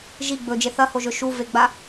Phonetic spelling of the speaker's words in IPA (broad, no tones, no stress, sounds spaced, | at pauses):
ʒ i ɡ͡b ɵ d͡ʒ e θ ɐ h o ʒ ɵ ʃ u v e ɡ͡b a